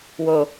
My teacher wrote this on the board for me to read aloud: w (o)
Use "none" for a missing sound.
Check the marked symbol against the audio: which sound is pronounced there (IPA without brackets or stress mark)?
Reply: o